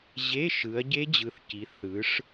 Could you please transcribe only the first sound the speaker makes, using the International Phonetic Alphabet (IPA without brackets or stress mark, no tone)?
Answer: ʑ